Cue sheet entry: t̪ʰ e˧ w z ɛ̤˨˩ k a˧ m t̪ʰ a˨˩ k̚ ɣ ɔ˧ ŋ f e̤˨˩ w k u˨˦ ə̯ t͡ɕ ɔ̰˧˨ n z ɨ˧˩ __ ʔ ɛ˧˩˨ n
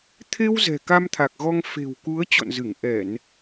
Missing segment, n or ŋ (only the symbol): ŋ